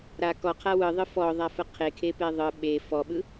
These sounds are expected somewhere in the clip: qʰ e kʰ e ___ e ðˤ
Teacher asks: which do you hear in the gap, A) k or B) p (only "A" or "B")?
B